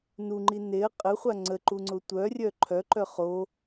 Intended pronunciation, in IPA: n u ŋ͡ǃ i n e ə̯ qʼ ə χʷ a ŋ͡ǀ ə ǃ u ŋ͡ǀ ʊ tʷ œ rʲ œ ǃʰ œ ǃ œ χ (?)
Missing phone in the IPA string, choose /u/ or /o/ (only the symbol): o